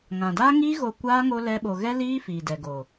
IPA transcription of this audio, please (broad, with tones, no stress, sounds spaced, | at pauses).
ŋ ã˨ d aː˦ ŋ iː˦ ɣ o˧ kʷ aː˦ ŋ o˦ l ɛ˦ ɓ o˧ ɣ ɛ˦ l iː˦ f iː˨ d ɛ˨ ɡ o˨